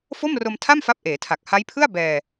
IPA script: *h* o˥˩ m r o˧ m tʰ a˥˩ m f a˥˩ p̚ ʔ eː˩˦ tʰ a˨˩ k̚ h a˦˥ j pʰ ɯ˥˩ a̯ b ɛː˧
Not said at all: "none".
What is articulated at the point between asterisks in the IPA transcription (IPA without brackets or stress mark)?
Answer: f